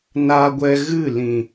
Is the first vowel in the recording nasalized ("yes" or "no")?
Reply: no